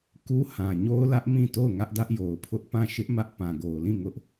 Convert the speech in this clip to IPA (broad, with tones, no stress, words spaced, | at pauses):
ku˦ hã˨ɲo˦ʊ̯lä˦ʔ mĩ˦˨to˦˨ʊ̯ ŋä˦ʔdä˦ʔjo˨ʊ̯pʰʊ˦ʔ pã˦˨ ʃɪ˦ʔ mä˦ʔ pã˨ɡo˨ʊ̯lĩ˦˨ ŋʊ˦ʔ